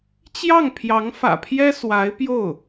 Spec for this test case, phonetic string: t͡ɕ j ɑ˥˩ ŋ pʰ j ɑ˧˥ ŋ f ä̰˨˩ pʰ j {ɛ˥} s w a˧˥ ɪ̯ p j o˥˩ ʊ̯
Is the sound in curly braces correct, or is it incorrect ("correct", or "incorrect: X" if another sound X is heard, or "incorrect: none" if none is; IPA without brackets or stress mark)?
correct